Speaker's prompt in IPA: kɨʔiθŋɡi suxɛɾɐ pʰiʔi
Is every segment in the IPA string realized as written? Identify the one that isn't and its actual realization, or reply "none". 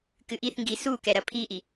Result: x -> k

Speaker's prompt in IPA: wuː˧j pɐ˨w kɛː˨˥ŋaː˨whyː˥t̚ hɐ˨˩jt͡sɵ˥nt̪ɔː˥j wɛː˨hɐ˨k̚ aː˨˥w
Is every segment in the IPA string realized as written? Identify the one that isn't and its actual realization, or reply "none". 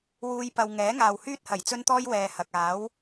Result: k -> ŋ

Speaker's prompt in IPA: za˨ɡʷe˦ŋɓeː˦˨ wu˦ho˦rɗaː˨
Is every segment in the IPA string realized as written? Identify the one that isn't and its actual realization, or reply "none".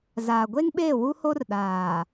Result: a˨ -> aː˨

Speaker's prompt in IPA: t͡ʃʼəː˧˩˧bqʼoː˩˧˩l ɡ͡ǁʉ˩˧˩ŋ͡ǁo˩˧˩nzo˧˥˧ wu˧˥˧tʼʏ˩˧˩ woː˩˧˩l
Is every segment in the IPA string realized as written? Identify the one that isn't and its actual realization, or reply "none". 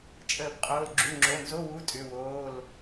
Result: ʉ˩˧˩ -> u˩˧˩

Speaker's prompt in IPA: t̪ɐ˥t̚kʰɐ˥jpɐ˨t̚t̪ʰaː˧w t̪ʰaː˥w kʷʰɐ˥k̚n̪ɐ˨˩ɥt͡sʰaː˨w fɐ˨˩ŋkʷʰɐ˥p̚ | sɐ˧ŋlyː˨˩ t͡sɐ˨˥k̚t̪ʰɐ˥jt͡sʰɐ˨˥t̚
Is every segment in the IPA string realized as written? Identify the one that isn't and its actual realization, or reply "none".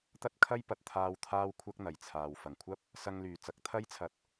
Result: ɥ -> j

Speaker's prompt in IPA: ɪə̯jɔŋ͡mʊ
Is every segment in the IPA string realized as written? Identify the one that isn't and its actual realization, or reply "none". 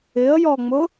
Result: none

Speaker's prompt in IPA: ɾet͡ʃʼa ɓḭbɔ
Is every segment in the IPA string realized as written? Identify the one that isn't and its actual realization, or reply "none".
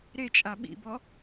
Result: none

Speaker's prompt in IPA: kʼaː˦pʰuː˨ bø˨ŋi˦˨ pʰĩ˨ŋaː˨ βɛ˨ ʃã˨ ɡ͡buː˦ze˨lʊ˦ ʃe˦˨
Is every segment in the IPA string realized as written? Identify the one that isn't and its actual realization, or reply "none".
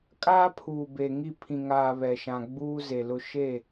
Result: ø˨ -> e˨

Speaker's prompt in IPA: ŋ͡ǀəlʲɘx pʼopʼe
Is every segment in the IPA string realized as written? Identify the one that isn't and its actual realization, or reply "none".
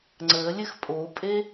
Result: none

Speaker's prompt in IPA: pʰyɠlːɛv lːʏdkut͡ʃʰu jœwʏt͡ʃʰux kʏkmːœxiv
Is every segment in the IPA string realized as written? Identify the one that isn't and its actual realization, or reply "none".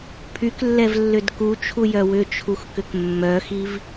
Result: ɠ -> k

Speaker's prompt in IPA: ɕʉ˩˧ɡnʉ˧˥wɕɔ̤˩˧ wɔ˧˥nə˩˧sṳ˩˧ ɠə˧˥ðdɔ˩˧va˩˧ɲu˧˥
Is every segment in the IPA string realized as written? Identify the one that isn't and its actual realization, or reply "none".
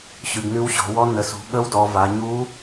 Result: ð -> w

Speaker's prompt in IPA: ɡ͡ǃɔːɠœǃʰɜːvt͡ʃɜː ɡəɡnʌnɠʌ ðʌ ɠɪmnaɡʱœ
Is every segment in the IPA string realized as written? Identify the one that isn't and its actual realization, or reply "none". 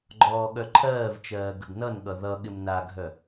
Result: none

